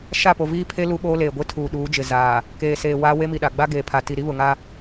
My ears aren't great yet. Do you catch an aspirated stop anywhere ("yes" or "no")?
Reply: yes